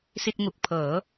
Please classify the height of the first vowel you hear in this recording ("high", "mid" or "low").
high